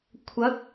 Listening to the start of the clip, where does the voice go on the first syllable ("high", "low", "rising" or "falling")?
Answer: rising